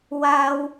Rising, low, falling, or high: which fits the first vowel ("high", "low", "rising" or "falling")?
high